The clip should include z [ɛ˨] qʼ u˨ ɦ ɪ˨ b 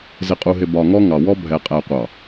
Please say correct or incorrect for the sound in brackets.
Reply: incorrect